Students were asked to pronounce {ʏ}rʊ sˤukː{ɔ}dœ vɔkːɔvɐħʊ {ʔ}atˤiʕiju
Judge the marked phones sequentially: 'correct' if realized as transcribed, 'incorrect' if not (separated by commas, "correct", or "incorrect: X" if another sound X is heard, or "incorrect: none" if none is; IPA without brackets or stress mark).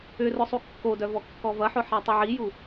correct, incorrect: o, incorrect: ħ